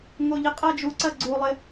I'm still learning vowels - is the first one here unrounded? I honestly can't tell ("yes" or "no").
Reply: no